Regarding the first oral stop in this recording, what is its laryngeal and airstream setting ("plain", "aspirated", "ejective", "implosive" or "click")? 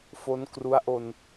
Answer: plain